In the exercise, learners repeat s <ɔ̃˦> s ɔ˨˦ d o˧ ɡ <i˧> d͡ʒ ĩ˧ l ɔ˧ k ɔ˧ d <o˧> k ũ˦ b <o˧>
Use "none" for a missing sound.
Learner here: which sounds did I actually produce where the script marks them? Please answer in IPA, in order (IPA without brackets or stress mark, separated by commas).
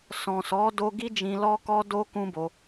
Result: ɔ̃˨, i˦, o˧, o˧